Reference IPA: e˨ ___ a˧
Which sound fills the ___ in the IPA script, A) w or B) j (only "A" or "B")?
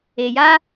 B